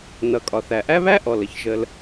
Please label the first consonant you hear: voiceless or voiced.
voiced